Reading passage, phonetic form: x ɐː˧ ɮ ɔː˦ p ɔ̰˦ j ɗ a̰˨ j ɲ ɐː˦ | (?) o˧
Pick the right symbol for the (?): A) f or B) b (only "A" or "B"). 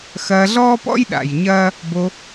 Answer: B